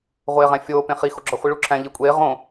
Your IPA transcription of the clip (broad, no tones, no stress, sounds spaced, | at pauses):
ʁʷ eː ʁ æ̃ fʲ oː p ẽ χ i x o ɡ͡ǁ ɒ χʷ i ɭ u ǁʰ æ̃ ʎ i kʷʼ eː ʁ õ